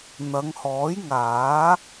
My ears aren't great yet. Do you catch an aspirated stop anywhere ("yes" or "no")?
no